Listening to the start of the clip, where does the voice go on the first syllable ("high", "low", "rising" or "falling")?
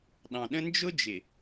low